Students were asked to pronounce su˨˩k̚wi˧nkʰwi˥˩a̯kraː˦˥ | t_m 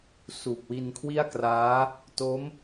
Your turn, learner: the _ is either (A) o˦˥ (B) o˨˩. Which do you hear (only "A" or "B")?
A